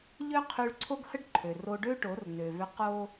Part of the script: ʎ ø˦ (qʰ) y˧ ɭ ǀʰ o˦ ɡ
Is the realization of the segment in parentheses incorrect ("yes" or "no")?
no